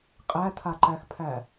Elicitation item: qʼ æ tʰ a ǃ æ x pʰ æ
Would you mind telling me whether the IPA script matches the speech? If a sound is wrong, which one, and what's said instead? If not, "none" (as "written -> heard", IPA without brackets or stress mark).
none